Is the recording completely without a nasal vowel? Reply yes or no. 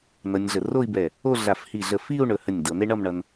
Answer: yes